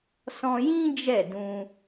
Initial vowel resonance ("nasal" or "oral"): nasal